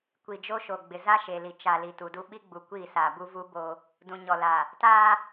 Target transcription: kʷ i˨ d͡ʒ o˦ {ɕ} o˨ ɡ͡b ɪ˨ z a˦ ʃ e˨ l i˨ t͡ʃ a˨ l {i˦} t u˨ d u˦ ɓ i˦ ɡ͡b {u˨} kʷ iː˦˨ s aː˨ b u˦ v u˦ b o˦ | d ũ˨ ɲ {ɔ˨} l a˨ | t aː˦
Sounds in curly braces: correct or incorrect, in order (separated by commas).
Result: incorrect, incorrect, correct, correct